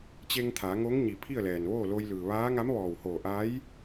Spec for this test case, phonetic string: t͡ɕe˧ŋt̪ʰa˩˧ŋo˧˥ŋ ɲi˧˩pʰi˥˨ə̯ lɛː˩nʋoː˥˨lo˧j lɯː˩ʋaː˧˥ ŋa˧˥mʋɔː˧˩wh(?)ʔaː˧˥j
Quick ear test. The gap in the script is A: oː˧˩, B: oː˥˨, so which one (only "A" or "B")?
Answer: A